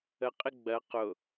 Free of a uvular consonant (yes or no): no